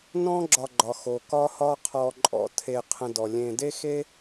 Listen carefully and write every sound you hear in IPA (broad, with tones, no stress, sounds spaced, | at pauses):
n ɔ̃˦ ɡ͡ǁ ɒ˨ ɡ͡ǃ ɒ˩ x o˩ k ɒ˦ h ɒ˦ qʰ ɔ˨ ǃʼ ɔ̰˨ tʰ e˨ qʰ ə̃˨ d ɔ˩ lʲ ẽ˨ d e˥ x e˥